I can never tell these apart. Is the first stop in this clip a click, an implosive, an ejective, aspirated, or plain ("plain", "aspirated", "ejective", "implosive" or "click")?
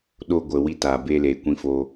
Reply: implosive